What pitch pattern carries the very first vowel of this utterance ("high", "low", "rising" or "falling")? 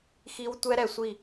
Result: high